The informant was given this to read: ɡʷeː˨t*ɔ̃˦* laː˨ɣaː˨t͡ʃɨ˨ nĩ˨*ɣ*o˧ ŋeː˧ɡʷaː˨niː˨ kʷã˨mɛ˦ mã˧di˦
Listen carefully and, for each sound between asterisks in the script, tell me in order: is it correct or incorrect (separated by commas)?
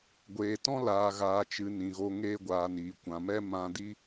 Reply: correct, correct